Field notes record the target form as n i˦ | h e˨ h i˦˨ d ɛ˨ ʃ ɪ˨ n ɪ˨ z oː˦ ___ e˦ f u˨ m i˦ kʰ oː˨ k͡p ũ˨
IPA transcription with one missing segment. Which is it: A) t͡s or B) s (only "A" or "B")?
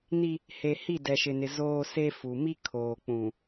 B